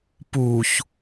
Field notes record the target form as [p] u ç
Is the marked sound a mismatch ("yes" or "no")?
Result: no